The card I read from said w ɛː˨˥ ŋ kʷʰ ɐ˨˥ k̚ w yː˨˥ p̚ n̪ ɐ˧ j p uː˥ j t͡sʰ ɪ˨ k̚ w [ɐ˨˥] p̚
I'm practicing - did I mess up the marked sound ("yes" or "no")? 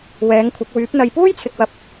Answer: yes